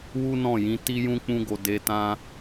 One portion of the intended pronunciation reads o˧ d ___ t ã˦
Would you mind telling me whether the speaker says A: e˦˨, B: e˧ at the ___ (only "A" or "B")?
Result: B